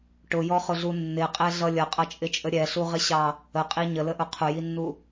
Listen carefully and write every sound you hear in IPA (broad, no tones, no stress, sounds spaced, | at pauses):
ʈ ʊ j ɔ χ ʊ ɮ u nː ɪ qʼ ɛ ɮ ʌ lʲ ʌ qʼ ʌ t͡ʃʼ ɪ t͡ʃʼ ə ɾʲ ɛ ɬ u ʁ ɪ ɕ ɑ | ə qʼ i ɲ ə l ə ʔ ʊ qʰ ʊ j i nː u